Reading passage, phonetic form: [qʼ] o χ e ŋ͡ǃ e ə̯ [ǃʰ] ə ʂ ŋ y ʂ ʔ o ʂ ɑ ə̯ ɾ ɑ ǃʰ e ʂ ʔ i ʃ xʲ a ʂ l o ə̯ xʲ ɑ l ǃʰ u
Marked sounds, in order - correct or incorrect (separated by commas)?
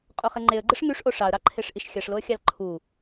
correct, incorrect